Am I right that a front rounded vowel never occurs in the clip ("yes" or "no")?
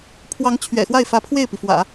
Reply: yes